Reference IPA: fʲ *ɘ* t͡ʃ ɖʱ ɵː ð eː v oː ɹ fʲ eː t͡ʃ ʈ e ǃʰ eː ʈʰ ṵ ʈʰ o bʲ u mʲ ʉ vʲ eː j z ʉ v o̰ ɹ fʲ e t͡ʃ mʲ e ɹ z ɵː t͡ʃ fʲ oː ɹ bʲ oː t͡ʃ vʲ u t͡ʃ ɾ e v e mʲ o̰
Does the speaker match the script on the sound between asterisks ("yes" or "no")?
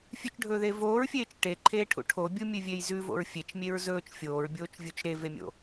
no